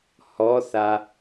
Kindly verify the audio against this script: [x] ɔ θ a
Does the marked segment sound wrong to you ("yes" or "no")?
yes